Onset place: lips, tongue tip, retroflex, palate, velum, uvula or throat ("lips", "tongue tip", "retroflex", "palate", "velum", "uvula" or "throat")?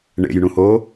retroflex